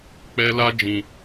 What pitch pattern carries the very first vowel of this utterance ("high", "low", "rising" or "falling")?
high